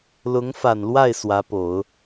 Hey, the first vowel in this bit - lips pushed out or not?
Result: yes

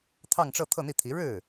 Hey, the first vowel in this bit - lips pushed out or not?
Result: no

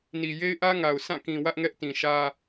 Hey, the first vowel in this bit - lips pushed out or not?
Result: no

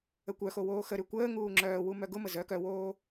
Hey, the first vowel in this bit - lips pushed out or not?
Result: no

